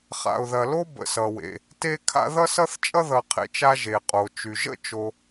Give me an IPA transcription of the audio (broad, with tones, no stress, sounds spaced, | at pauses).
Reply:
χ a̰˨ ʊ̯ ð ɐ˨ l o˥ b ə̰˨ s ʌ˩ w ḛ˩ | t e˥ kʰ a̰˥ ð ʌ˥ s ʌ˥ θ t͡ʃʼ ʌ˥ ð ʌ˨ qʰ ḛ˨ t͡ʃ a˦ ʒ e˩ qʼ o˩ t͡ʃ y˩ ʒ ə̰˥ t͡ʃ o˨